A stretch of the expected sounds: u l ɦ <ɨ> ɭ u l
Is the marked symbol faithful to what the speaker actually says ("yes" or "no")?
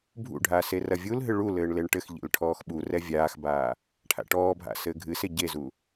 yes